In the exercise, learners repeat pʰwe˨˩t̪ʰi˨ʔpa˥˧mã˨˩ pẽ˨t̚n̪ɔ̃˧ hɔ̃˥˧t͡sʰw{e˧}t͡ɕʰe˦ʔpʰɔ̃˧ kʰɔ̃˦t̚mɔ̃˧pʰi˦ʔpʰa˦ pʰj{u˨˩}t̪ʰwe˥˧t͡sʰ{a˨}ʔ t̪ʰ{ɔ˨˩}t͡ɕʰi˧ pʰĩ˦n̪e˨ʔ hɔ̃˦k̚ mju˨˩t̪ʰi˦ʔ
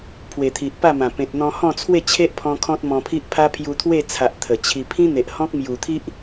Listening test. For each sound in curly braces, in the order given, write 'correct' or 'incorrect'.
incorrect: e˥˧, incorrect: u˧, correct, incorrect: ə˨˩

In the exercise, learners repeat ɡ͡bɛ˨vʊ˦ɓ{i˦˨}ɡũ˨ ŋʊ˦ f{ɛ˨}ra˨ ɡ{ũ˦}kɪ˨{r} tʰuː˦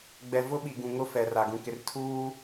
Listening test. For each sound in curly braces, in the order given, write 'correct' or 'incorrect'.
incorrect: i˨, correct, incorrect: ũ˨, correct

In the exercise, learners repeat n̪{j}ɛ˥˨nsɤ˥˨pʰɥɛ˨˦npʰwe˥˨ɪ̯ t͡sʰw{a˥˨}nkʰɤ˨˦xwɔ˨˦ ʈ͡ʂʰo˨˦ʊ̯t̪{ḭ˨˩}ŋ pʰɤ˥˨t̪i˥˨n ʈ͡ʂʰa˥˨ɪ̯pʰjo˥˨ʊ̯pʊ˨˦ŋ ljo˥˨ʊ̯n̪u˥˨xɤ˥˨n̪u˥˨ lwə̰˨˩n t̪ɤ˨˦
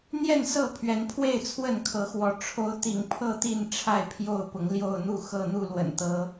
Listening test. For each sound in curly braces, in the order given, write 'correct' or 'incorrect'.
correct, incorrect: ə˥˨, correct

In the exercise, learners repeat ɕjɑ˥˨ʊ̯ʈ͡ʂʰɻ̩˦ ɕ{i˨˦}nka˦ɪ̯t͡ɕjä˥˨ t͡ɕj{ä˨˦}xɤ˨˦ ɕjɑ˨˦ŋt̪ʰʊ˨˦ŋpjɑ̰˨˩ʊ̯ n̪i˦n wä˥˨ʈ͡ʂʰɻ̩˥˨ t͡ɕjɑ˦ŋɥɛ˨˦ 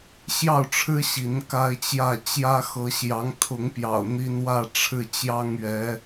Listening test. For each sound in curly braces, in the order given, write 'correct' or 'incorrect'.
correct, incorrect: ä˦

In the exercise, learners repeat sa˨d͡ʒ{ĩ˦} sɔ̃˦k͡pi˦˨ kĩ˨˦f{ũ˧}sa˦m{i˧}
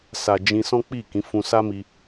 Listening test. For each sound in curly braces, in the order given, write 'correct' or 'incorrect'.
incorrect: ĩ˧, correct, correct

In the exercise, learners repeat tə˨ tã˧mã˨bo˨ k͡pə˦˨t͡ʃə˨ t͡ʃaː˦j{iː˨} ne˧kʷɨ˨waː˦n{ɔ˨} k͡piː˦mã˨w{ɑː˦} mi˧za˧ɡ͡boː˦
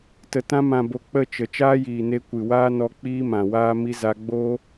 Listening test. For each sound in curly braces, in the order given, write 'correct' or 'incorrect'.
correct, incorrect: ɔ˧, incorrect: aː˦

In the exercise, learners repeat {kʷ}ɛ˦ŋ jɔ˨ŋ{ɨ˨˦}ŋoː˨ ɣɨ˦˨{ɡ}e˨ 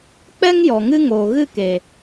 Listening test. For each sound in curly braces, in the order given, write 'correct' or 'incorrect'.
incorrect: k͡p, incorrect: ɨ˦, incorrect: k

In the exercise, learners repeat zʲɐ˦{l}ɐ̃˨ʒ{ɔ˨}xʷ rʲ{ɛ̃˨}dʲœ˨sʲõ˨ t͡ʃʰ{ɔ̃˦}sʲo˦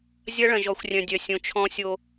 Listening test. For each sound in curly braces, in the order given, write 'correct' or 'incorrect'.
incorrect: ɭ, correct, incorrect: œ̃˨, correct

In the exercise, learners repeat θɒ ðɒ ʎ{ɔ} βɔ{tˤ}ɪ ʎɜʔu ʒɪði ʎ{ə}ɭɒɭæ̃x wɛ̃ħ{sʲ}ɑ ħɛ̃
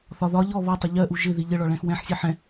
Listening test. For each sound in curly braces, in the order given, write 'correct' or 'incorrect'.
correct, correct, correct, correct

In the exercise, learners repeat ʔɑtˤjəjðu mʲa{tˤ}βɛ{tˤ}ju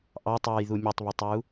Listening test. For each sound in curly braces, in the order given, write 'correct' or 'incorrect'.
correct, correct

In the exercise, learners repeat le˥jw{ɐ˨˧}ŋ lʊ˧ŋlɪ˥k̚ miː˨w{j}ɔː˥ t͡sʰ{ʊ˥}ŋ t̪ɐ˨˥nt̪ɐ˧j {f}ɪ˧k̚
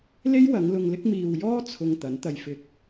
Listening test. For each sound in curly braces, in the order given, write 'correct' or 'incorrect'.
correct, correct, incorrect: ʊ˧, correct

